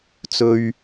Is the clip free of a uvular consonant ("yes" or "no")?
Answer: yes